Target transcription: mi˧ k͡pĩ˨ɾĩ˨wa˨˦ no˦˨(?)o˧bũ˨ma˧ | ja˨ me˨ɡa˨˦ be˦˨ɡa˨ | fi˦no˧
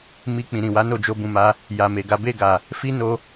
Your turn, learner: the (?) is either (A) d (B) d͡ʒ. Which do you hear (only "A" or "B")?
B